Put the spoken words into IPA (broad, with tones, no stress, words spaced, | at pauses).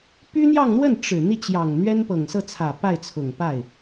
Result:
py˥n̪jɑ˥˧ŋn̪wə˥˩n ʈ͡ʂɻ̩˨˩ n̪i˥˩t͡ɕjɑ˨˩ŋ n̪ɥɛ˥npɤ˨˩ŋsɤ˥˩t͡sʰä˨˩ pa˥˩ɪ̯t͡sʰʊ˨˩ŋ pa˥˩ɪ̯